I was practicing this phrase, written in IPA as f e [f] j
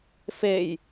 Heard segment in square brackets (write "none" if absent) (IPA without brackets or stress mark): none